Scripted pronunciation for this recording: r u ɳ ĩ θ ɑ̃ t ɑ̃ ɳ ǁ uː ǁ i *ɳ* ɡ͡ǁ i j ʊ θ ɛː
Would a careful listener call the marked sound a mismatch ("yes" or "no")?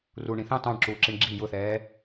no